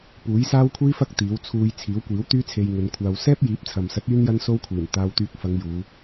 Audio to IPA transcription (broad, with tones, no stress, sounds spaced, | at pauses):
p uː˨˥ j s aː˥ w kʷʰ iː˥ f ɐ˥ k̚ t̪ iː˨˥ w t͡sʰ uː˧ j t͡sʰ iː˨˥ w kʷ iː˨˥ w t̪ yː˥ t͡sʰ e˧ j ŋ ɵ˨˧ n kʷʰ aː˧ w s ɛː˥ p̚ j iː˨˥ p̚ t͡sʰ ɐ˨ m s ɐ˨˥ t̚ yː˥ n j ɐ˥ n s o˥ w kʷʰ iː˨˩ n t̪ aː˧ w t̪ yː˧ k̚ f ɐ˨˧ ŋ j uː˨˧